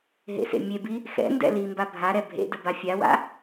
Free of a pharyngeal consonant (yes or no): yes